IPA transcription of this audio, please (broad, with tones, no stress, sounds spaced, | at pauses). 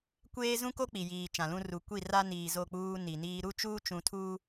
kʷ eː˦ z ũ˦ k o˦ k͡p i˨ j iː˨ t͡ʃ ã˨ l ũ˦ r u˨ kʷ i˦˨ r a˦ n iː˨ z o˦˨ k͡p uː˦ n i˨ n iː˦ ɾ u˦ t͡ʃ uː˦ t͡ʃ ũ˨ tʰ uː˦